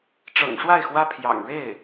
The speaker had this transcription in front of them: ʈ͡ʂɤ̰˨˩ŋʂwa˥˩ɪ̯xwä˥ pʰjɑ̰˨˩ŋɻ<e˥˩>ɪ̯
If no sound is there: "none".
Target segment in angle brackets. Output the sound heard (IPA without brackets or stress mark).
e˥˩